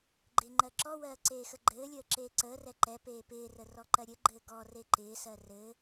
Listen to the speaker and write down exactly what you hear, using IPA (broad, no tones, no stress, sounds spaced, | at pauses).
ɡ͡ǃ ɪː ŋ͡ǃ ɜ ǁ ɔ w ɜː ǀ eː x ə ɡ͡ǃ ɘː lʲ əː ǁ eː ǀ əː r ɛ ǃ ɛ p eː p ɪː r ə r ɔ ǃ ɜ ɾʲ ɘ ɡ͡ǃ ɘː ɡ ɔ r e ǃ ɪː s ɜ r ɘ